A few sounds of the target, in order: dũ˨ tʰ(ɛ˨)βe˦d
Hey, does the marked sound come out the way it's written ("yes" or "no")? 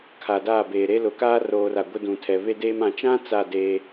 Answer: yes